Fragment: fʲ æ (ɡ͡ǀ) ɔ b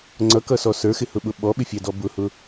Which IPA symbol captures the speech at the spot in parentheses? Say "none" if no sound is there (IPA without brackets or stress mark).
d